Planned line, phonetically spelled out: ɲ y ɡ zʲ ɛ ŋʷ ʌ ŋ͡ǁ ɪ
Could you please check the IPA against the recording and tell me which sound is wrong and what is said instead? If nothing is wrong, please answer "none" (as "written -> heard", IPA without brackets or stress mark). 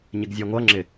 y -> ɪ